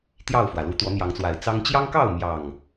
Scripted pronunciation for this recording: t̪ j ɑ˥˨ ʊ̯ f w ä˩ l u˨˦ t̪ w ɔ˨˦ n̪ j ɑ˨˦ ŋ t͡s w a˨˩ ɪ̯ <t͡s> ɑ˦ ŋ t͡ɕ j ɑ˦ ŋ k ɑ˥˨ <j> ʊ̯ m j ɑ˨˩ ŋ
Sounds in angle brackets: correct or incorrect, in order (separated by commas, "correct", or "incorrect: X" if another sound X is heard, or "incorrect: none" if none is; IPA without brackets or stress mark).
correct, incorrect: none